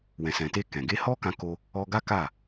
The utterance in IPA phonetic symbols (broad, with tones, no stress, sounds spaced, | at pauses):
w ɛ̃˨ s ɛ̃˨ t e˧ k ɛ̃˨ ɡ e˧ h ɔ˦ k ã˧ k o˧ | ɔ˧ ɡ a˦ k a˦˨